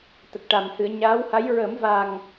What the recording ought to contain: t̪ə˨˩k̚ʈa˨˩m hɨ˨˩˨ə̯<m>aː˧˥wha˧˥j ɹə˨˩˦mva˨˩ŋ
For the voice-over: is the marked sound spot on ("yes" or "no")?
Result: no